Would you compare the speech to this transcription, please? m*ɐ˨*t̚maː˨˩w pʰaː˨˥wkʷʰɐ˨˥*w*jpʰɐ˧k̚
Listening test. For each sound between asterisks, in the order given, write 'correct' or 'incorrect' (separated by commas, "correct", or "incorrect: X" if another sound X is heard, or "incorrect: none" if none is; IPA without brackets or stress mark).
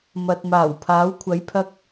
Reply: correct, incorrect: none